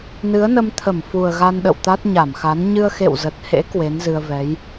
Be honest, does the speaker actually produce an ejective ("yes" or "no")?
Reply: no